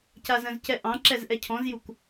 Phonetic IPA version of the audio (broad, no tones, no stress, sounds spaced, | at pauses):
c a z ə̃ z c ɛ ʔ ɑ̃ ǁ ɛ z ʔ ɛ cʰ ɔ̃ z j u k